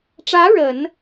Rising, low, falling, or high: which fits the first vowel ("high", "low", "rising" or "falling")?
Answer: rising